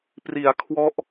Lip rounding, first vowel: unrounded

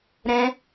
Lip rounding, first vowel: unrounded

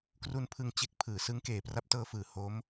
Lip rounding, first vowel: rounded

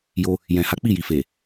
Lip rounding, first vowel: rounded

